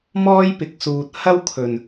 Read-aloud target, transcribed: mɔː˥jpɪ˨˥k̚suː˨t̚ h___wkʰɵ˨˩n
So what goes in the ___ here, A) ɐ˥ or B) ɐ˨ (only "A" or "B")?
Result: A